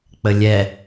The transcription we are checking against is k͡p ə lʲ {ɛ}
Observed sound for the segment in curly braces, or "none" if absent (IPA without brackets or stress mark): ɛ